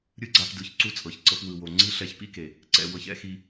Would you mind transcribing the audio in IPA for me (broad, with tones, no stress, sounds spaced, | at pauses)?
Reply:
ɾʲ ɯ˦ ɡ͡ǀ a˧ p d ɯ˨ ç ǀ u˦ t͡sʼ ɤ˨ ç ǀ ɤ˧ p w ɯ˨ w o˨ ŋ͡ǀ i˦ ɬ ɛ˦ ç p ḭ˦ k e˨ | ǀ ɛ̰˧ w ɤ˧ ç ɛ̰˦ x i˧